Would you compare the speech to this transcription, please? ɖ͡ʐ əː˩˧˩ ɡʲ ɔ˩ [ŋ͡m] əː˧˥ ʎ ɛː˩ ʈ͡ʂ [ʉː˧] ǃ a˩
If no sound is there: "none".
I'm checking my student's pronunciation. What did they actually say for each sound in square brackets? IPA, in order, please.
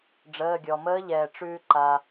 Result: m, ʉː˧

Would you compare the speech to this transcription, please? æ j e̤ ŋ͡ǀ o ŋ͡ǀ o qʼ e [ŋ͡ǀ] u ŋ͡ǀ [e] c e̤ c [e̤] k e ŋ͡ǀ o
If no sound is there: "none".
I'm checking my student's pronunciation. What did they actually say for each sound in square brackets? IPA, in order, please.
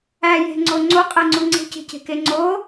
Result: ŋ͡ǀ, e̤, e̤

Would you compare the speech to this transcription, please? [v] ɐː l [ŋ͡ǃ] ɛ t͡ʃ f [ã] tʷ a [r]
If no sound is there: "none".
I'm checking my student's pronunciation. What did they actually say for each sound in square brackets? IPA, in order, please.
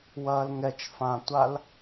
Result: w, ŋ, ã, l

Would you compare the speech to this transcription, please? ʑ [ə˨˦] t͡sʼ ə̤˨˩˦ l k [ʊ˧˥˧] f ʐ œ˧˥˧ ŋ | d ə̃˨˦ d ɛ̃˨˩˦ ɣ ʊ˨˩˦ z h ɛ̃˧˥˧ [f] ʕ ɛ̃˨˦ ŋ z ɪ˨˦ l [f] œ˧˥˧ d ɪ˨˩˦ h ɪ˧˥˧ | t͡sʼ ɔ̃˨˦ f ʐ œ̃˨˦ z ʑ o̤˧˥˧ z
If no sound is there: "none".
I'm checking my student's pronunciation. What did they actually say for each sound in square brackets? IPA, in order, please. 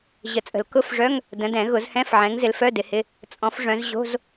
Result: ə˨˩˦, ʊ˧˥˧, f, f

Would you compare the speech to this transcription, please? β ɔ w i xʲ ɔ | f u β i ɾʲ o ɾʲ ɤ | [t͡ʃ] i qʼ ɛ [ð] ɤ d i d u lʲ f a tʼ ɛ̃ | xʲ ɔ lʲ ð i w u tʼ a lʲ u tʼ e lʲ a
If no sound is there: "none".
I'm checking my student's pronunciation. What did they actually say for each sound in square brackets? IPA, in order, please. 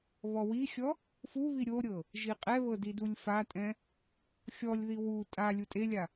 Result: ʒ, β

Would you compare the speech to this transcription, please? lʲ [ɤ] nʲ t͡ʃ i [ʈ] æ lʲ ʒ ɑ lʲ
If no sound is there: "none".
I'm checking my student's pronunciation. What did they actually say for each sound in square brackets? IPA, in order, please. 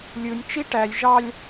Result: ɯ, ʈ

